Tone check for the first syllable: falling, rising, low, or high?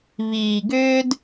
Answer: low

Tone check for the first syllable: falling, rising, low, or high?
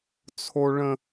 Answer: low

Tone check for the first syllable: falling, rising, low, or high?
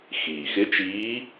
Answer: low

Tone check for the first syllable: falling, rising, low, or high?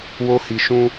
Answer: high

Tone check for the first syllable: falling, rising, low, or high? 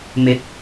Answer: rising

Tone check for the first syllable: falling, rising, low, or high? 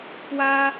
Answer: high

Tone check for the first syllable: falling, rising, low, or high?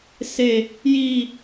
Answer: high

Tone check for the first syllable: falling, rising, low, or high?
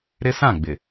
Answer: high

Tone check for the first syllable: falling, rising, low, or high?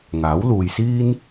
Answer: rising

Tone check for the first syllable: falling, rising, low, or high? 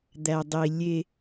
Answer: low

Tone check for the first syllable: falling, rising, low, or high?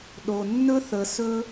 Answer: low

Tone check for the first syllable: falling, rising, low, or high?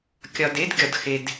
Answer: low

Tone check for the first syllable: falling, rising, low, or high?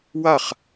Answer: falling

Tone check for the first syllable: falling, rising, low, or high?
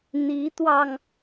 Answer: rising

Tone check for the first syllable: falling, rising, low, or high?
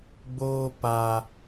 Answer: high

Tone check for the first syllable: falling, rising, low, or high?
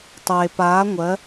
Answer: low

